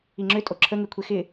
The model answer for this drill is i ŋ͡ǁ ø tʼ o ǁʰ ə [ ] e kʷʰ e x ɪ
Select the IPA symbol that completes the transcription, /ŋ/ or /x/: ŋ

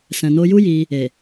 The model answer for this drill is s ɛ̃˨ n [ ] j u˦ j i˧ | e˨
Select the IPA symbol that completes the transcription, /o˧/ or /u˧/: o˧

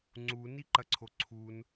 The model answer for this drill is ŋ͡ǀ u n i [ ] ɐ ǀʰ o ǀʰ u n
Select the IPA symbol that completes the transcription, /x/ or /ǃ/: ǃ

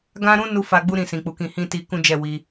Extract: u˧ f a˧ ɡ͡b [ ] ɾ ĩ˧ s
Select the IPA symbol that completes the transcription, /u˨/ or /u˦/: u˦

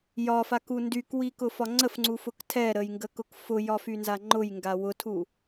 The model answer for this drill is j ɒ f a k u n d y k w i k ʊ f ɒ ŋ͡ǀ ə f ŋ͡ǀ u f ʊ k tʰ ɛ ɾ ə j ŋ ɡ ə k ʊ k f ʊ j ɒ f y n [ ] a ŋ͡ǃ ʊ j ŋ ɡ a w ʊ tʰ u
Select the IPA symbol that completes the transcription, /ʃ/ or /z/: z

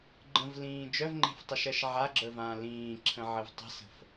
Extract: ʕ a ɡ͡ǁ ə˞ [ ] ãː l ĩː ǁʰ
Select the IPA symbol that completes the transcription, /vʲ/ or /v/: v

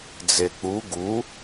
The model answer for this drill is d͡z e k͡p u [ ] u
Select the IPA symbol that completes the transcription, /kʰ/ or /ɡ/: ɡ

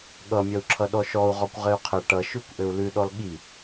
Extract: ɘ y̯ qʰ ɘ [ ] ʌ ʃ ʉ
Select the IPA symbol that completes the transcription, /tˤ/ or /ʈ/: ʈ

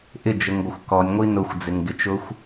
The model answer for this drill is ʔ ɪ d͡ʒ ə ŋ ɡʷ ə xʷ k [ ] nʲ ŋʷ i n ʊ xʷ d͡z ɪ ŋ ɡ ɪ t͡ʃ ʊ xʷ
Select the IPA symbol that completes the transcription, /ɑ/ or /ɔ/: ɔ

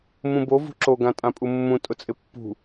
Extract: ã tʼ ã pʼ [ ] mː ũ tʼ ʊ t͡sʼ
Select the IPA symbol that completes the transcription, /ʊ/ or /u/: u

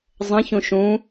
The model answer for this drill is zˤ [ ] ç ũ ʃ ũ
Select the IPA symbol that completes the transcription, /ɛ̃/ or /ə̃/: ə̃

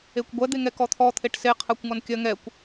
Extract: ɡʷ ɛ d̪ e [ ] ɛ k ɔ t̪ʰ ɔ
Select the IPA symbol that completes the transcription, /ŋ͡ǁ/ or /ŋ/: ŋ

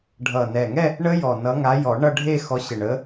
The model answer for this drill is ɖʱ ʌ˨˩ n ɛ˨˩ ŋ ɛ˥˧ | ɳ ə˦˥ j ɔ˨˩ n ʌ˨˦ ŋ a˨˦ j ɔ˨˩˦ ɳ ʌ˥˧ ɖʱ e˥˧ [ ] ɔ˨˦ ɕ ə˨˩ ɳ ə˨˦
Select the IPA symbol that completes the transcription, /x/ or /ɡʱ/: x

